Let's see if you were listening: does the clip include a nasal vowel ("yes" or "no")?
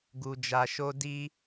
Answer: no